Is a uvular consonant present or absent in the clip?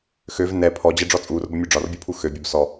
absent